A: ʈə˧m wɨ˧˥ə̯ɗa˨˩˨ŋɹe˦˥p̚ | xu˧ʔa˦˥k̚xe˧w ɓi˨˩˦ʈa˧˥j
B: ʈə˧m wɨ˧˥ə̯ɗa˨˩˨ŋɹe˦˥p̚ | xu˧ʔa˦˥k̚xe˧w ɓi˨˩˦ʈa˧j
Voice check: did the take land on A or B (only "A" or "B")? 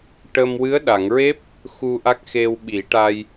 B